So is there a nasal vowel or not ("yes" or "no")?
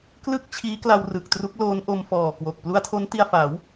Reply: no